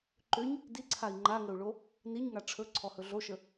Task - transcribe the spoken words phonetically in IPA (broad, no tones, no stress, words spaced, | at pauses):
ǃʏɲ | diǀʰai̯ ŋ͡ǃaŋəu̯ɭo | niɲŋa ʈ͡ʂʰɵǀʰɔhɵ ɮoʃə